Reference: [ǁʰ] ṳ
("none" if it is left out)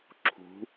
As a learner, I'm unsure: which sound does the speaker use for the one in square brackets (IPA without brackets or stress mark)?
ǁʰ